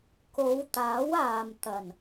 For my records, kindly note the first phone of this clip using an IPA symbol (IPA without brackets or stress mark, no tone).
k